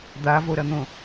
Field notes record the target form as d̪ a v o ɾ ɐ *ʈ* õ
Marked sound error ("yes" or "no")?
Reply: yes